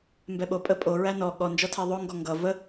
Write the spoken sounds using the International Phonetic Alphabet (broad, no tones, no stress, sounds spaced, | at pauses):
m b ɛ ɓ o pʼ ə pʼ o ɹ æ n ɔ ɠ ɔ n d͡ʒ ɔ tʰ æ ðˤ o ŋ ɡ ɔ ŋ ɡ ʌ v ə